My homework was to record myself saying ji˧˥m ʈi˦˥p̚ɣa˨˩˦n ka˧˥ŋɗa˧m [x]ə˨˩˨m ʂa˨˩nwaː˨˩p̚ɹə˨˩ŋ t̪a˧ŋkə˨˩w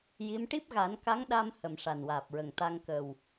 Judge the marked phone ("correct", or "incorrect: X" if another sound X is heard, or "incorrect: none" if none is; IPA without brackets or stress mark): incorrect: h